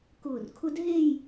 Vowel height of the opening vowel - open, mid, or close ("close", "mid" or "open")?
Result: close